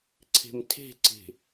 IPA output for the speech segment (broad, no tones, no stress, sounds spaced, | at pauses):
ǀʰ e̤ m tʰ e̤ ǀ e̤